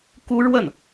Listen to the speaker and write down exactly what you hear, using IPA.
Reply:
k u˥ ɻ w ə˥˩ n

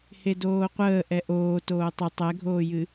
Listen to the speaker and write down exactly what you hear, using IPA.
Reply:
h e d oː qʷ əː ʔ ɛ ʔ oː t oː tˤ ʏ tˤ ɛ ɡʱ oː j ɨ

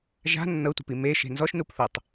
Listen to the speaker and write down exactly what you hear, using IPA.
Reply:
ʒ a̤ nː ɤ tʷ e̤ p i m e ʃ e̤ n z ɔ ʃ n u p θ ɤ tˤ

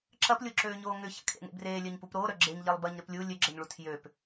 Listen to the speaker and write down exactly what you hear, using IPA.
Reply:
ǁ ɐ p lʲ o ǁ øː ɲ oː ŋ ʏ ç a̰ kʰ ḛ ŋ ḛ b r eː lʲ œ ɲ p u p ɾ oː ɾ œ ɡ͡ǁ e ɲ ʎ e lˠ b ɐ ɲ ɾ ʏ p lʲ u lʲ ø ɡ͡ǁ ɐ ɲ ɭ u tʰ j ø p

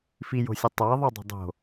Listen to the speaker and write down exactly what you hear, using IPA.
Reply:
f i j o̤ sʲ ɘ tˤ a ðˤ u dˤ o̤ dˤ o̤

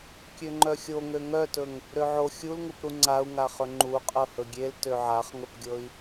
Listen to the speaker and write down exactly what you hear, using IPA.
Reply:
kʲ ø ŋ͡ǃ œ xʲ o ŋ ø ŋ œ t ɵ ŋ | ɾ ø ʕ o xʲ u l ŋ u p ɾ u ŋ͡ǀ a u̯ ŋ a χ ɵ ŋ͡ǃ u qʼ ɤ h ɵ ɡʲ e l t ø ʕ a χ ŋ ɵ p ɡʲ ɤ i̯

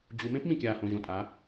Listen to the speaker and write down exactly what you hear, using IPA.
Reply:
d͡ʑ u˩˧ m ẽ˥ p m ĩ˩ kʲ aː˩ h õ˩ ʑ õ˩ tʼ a˩˧

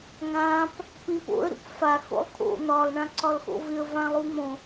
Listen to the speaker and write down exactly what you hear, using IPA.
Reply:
ŋ ã p | p ĩ p o̰ ə̯ ɾ ṵ p f a x o̰ lˠ kʰ o̰ n̪ ɒ lˠ ɳ ã ǀ ɒ l x o̰ v ɪ ə̯ v ã lˠ u m õ

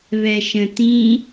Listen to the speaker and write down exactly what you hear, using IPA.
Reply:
β ɛ ʃ ə̃ t ĩ

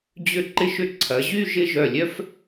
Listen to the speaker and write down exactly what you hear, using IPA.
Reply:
d͡ʑ ʏ˧˩ ǃ ɪ˧ ʃ ʏ˧ ǀʰ ɐ˩˧ ʑ y˥˧ ʒ ɪ˥˧ ʒ œ˧˩ lʲ œ˥ f

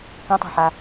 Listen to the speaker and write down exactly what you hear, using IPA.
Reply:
k ɐ̃ tˤ a̤ ħ a

